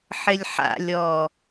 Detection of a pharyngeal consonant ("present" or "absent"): present